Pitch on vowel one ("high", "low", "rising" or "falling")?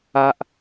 high